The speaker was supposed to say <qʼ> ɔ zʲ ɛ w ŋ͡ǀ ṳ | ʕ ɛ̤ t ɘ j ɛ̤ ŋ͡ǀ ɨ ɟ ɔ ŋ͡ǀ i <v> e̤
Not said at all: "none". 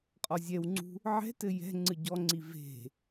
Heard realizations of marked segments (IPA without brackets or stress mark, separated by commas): qʼ, v